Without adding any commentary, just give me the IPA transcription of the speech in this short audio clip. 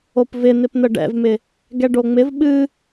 opvɪn̪ɪpn̪ə ɖɛ̰vmɪ | ɡɛɖoŋ͡mɪv ɓɨ

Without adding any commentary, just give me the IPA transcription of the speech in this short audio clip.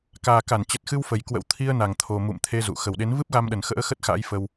kaː˨˩ka˧˩n t͡ɕə˨˩t̚xɨ˧w fə˨˩jkwə̰˧˥w t̪ʰi˧ə̯na˨˩ŋ t̪ʰo˨˩ mṵ˧˨mt̪ʰe˧ zṵ˧˨ xə˨˩wɗe˨˦n vɨ˦˥p̚ɣa˧mɗə˨˩nxə̰ː˧˥ xə˦˥t̚xa̰ː˧˥jfə˧w

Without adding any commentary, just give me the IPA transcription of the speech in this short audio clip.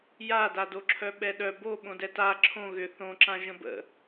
jadadoǁʰœ ɓɛɗœ bo ɓõdɛta ǁʰõ ɣʏ θõǁã ʒə̃bə̰

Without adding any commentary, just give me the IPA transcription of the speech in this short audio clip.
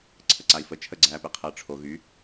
ǀʰəǀai̯fə t͡ʃʰəɡ͡ǀæːpe qʰəːʈ͡ʂʰo ɣy

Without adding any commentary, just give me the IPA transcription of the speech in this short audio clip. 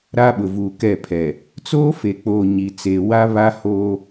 ɾa˦ɓʊ˨vuː˨ kɛ˦˨pʰɛ˨ | t͡soː˦fe˨k͡poː˨ ɲi˨t͡seː˨ wa˦βa˦ ho˦

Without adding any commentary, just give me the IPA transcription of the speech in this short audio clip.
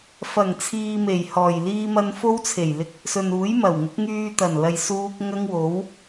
fɐ˨˩ŋ t͡sʰiː˧me˨˩jhɔː˨˩j liː˧mɐ˧n fo˥wt͡sʰe˨˩jlɪ˧k̚ | sɵ˨nuː˨˥jmɐ˨˩wŋʊ˨˥k̚ ŋyː˧t̪ɐ˨˩nlɐ˨j suː˥k̚ ŋɐ˥ŋwo˨˥w

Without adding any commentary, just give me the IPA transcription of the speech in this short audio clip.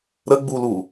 ɾəɡ͡bulu

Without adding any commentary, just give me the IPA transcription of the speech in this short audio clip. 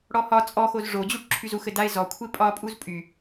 ɽɔhɒ t͡sʼɔxoz ʐod͡ʑuʈ ǁʰyzux ɘdaɪ̯ zɔ kʷʰɪpʼɒ pʼuzpʼy

